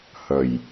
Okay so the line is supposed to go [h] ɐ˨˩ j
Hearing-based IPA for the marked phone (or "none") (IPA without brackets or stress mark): h